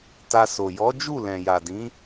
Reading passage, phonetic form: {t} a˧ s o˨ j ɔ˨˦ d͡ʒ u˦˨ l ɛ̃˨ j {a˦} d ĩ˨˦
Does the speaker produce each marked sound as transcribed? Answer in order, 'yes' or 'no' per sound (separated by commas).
yes, no